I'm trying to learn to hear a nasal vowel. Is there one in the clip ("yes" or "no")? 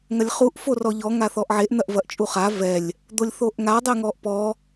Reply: no